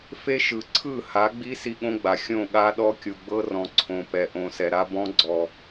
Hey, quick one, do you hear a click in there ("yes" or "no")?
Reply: yes